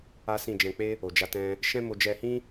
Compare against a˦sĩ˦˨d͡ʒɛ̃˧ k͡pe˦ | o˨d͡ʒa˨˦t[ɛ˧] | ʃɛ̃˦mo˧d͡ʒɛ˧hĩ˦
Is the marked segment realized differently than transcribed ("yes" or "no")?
yes